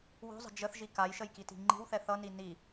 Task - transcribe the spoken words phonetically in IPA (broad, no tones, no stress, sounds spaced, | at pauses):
w o̤ zˤ ə̤ d͡ʒ ə θ ʒ i k a j ʃ ə j k i t i̤ ŋ͡ǃ i̤ w θ ɛ θ ʌ n i n i